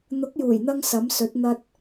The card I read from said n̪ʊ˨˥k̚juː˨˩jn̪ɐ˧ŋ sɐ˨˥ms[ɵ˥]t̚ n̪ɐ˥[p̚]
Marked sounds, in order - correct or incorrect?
incorrect: ɵ˨˥, incorrect: t̚

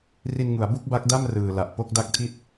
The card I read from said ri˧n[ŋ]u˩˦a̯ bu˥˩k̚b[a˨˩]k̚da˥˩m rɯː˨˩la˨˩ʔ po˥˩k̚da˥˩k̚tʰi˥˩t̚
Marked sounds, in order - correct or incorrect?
correct, incorrect: a˦˥

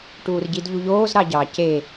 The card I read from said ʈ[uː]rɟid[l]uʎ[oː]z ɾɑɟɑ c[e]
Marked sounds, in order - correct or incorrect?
correct, incorrect: ʎ, correct, correct

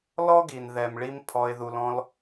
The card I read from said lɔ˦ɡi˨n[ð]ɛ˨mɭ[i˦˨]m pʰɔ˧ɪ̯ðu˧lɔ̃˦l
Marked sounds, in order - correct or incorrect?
correct, incorrect: i˧

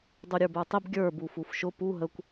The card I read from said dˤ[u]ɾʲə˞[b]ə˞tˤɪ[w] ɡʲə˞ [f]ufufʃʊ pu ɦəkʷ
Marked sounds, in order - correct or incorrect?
correct, correct, incorrect: b, incorrect: b

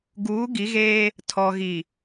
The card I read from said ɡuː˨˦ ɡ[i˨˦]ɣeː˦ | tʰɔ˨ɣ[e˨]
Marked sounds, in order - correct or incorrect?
correct, incorrect: i˨

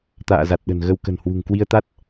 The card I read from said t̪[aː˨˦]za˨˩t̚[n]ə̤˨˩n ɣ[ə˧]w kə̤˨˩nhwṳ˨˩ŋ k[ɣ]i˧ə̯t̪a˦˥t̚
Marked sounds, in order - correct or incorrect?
incorrect: a̰ː˧˨, incorrect: ɗ, correct, incorrect: w

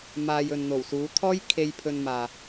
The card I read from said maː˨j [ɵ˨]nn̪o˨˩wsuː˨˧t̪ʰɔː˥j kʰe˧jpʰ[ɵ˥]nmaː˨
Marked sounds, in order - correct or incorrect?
correct, incorrect: ɵ˧

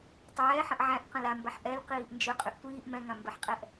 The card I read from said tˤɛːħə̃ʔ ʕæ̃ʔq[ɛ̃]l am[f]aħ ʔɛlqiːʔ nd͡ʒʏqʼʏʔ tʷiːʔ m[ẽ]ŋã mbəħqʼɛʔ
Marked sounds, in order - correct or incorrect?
incorrect: ə̃, incorrect: b, incorrect: ɛ̃

